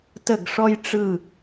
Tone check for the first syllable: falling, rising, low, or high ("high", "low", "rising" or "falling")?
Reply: falling